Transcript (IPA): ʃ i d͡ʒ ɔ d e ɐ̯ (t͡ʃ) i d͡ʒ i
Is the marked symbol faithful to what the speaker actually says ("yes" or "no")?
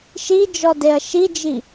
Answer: no